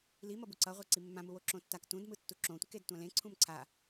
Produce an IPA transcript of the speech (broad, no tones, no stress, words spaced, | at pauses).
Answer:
limʌbu ǀʌʁʷe ǀimːãmuwo ǁõtːak tũdmɯ tːuǁõtʷiked tʷãlẽ ǀʰũmǀʰa